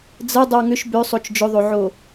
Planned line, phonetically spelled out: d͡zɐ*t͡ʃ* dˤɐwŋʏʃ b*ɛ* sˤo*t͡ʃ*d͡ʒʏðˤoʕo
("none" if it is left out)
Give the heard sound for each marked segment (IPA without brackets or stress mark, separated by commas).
none, ø, t͡ʃ